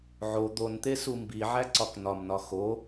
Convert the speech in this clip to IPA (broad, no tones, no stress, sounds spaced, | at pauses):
ʕ o d̪ o n t̪ e s u m b i ʕ æ ǀ ɒ k n ɒ m n ɒ x o